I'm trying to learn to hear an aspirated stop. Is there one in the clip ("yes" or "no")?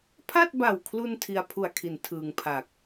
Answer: yes